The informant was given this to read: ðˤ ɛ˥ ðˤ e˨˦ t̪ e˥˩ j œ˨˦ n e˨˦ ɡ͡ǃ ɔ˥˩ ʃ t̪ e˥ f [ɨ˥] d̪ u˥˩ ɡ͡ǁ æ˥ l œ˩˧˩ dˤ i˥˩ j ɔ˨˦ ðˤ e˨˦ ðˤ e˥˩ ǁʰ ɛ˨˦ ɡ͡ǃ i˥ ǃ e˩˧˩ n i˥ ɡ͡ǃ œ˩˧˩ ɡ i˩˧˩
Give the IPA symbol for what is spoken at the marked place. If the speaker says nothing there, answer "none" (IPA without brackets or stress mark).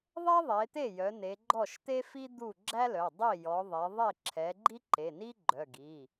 i˥